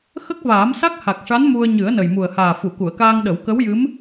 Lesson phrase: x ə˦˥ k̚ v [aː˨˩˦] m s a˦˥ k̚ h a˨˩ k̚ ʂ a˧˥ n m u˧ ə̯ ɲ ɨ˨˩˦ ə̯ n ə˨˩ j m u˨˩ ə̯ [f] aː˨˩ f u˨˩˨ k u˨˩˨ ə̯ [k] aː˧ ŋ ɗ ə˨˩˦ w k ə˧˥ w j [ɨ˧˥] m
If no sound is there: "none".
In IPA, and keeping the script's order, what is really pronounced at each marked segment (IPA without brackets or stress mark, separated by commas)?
aː˨˩˦, h, k, ɨ˧˥